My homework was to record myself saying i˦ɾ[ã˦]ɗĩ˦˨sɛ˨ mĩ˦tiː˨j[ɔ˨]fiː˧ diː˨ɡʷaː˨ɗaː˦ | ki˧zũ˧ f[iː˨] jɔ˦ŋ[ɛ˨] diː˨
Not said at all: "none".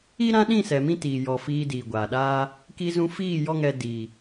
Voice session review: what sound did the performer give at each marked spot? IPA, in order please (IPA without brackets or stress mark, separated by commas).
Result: ã˦, ɔ˨, iː˦˨, ɛ˧